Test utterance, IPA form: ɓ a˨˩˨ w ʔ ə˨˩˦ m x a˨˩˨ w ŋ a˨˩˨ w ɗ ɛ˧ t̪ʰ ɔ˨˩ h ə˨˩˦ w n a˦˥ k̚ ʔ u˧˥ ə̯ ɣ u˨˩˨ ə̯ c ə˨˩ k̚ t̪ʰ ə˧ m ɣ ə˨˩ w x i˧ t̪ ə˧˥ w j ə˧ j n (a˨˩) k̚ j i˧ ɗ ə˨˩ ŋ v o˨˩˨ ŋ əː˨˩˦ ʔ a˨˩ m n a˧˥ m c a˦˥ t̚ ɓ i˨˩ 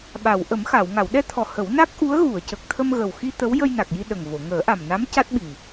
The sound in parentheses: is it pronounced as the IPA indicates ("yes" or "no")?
yes